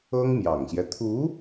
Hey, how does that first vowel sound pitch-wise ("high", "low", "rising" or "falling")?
high